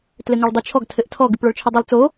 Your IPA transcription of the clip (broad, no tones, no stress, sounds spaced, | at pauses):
t l ɘ ŋ a ɭ dˤ ɘ t͡ʃʰ ɔ ɡ tʰ ɘ ʔ tʰ ɔ ɡ ʉ p ɭ ɔ ɭ t͡ʃʰ ɘ dˤ ɘ lˠ t͡s o